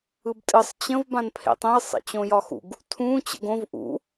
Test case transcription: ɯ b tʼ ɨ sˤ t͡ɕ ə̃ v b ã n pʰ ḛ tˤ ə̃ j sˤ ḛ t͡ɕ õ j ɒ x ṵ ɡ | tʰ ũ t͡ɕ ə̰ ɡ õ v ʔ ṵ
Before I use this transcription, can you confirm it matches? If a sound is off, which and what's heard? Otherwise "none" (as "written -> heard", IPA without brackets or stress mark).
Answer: none